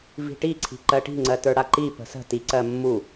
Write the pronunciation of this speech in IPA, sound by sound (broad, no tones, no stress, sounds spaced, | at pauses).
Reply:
v i̤ ʈ i ǀʰ i̤ ǃ ɜ ʈ i̤ ŋ͡ǀ ɜ t ə˞ ɽ a ǃ i p ə̤ s ə̤ t i ǀ ɜ mː u